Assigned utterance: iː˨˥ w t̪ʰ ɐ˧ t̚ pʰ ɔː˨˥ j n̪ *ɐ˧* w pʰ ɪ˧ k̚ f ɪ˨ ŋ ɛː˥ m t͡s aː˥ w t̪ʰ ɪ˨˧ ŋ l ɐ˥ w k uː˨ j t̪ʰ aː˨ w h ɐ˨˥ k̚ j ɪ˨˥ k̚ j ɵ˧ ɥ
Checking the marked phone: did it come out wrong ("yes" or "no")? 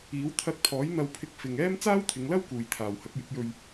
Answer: no